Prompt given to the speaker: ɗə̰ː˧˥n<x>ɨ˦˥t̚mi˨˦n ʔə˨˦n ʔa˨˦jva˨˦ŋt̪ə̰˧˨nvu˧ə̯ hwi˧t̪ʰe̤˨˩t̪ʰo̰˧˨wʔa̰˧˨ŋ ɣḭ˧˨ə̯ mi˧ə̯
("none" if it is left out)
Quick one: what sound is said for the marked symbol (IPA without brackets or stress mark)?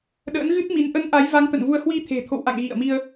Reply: ɣ